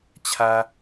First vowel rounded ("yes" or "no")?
no